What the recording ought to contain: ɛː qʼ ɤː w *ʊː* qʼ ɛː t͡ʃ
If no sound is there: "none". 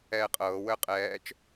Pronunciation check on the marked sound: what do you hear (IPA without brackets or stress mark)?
əː